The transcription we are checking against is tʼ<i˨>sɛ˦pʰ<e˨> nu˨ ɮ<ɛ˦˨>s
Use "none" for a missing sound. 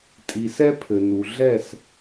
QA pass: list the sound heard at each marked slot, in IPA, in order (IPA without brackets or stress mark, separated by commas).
i˨, ɘ˨, ɛ˦˨